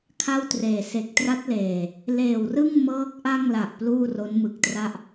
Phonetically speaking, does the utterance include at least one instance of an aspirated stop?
yes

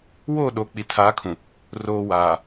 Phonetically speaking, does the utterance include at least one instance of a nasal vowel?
yes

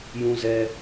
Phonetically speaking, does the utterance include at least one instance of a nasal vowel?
yes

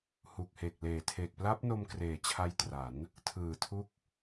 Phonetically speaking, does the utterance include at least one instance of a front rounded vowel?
no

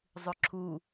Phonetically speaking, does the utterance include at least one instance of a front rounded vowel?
yes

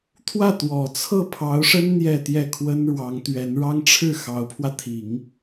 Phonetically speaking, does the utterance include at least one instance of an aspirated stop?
yes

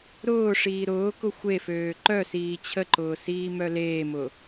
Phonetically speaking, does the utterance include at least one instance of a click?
yes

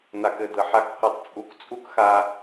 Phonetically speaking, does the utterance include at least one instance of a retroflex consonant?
no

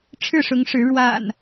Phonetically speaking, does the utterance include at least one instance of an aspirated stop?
yes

